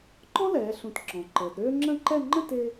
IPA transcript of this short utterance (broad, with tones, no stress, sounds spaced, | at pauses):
ǃ ɔ̃˥ l ɛː˩˧ ɬ ũ˩˧ t ǁ ɔ̃˩˧ ǃ əː˩˧ d ɾ øː˥ ŋ͡ǁ ə̃˥˧ ǃ ɛ˥˧ ŋ͡ǃ ə̃˥˧ t ɪ˧